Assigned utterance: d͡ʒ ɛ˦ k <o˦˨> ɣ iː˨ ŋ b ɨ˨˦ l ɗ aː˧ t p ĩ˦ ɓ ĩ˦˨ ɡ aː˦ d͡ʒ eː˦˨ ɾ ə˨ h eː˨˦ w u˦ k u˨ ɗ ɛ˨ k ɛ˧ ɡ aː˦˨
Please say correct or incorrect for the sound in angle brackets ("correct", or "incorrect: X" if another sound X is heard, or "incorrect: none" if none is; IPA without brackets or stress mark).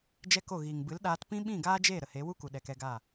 correct